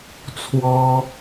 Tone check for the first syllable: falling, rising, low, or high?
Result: high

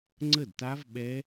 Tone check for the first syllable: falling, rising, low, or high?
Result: falling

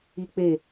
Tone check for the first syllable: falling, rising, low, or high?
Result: high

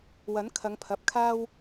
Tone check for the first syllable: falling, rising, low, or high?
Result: rising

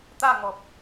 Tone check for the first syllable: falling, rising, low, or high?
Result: falling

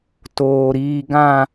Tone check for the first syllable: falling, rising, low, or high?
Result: low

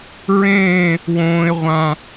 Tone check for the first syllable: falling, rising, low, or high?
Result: falling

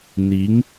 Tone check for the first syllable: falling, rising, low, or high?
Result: rising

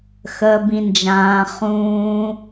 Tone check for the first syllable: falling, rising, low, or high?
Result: low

